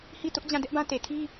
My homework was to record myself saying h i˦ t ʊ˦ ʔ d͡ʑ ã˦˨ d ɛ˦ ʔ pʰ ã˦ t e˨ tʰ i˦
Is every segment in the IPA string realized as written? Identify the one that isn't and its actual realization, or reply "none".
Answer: pʰ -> b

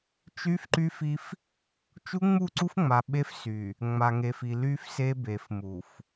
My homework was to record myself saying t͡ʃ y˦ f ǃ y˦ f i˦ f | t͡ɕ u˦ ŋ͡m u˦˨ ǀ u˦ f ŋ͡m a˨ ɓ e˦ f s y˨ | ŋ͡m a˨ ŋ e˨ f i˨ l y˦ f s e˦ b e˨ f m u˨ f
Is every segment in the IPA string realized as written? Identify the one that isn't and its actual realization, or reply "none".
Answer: t͡ɕ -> t͡ʃ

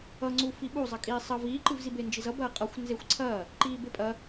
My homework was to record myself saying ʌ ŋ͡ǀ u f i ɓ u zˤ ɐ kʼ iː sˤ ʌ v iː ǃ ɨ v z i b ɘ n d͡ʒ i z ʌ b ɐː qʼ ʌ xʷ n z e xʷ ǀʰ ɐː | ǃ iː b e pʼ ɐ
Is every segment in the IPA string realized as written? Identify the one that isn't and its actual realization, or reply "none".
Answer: ɘ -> e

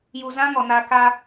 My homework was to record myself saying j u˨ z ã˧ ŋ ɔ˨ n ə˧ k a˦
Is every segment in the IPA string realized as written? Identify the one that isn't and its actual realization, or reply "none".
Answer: ə˧ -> a˧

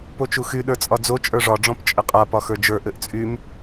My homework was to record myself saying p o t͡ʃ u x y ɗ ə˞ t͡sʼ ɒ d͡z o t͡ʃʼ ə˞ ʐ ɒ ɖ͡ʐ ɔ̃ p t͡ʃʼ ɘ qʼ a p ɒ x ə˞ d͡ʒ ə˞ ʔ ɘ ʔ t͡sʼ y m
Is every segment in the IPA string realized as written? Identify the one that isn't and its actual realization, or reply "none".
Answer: none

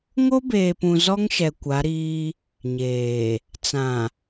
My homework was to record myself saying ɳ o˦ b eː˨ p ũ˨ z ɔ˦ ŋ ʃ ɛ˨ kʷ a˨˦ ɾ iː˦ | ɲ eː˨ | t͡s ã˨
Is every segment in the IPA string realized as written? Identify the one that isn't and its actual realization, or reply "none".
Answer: ɳ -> ŋ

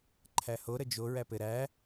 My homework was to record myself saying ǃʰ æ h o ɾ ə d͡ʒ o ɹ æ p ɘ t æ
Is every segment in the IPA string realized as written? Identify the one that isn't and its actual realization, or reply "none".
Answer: t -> ɾ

